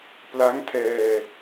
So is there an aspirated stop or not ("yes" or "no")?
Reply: yes